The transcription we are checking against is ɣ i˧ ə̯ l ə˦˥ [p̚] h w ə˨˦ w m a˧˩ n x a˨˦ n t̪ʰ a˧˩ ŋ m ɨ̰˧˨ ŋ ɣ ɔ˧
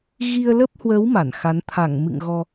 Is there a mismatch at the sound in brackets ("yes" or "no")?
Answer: no